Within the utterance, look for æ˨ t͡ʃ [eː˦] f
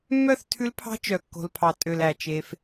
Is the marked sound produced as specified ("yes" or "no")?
no